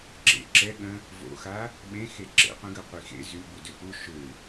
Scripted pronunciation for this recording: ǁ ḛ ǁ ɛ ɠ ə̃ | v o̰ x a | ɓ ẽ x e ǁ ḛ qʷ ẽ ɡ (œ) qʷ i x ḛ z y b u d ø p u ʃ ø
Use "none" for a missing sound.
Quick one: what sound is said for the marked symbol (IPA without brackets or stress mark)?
œ